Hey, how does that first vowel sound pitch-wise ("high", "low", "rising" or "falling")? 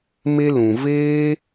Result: high